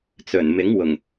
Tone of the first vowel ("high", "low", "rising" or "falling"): low